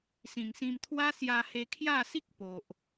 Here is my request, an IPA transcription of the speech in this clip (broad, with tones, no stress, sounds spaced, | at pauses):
s ĩ˨˩ ŋ s ĩ˧ m t̪ʰ w a˦ s j a˧ h e˧ kʰ j a˥˧ s i˦ k̚ p o˨ ʔ